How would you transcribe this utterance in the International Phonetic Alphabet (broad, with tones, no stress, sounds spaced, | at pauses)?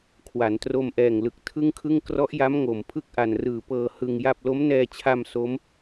kʰ w a˩˦ n t r o˧ m ʔ ɛː˨˩ ŋ l ɯ˨˩ k̚ tʰ ɯ˥˩ ŋ kʰ ɯ˥˩ ŋ k r ɔ˦˥ ʔ j a˦˥ m ŋ o˨˩ m pʰ ɯ˥˩ k̚ ʔ a˨˩ n r ɯː˨˩ p ɤː˧ h ɯ˧ ŋ j a˥˩ p̚ l o˦˥ m n ɛː˧ t͡ɕʰ a˧ m s o˦˥ m